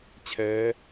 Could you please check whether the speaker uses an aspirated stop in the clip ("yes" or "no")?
yes